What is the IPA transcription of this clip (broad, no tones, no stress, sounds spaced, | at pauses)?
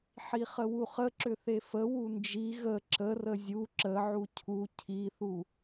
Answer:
ħ i χ ə w u χ ə ǁ ʏ θ e f ə w u n d͡ʒ i ɣ ə ǁ ə r ə zʲ u ǁ ə ʕ u cʰ u cʰ i θ u